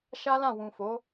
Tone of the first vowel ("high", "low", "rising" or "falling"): high